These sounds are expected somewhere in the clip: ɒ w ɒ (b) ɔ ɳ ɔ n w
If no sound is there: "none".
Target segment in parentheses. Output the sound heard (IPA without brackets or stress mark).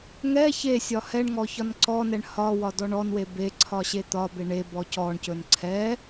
d